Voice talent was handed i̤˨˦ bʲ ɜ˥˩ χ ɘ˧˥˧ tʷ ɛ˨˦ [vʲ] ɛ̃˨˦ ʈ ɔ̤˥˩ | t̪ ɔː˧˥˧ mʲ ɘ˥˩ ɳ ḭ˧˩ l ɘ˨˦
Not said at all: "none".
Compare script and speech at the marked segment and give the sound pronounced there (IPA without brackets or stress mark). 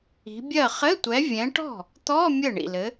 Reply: vʲ